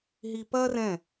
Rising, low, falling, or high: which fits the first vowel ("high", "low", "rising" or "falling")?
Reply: high